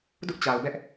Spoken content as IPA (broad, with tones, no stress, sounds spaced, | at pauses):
d ʊ˦ ʔ t͡ɕ a˨ ʊ̯ b ɛ˦ ʔ